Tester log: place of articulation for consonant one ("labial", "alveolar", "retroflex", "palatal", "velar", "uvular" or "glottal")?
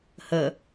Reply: glottal